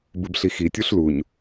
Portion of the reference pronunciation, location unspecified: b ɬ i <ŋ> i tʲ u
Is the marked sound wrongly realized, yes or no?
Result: yes